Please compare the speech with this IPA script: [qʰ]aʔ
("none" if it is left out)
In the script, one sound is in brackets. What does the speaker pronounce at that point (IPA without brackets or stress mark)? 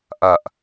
ʔ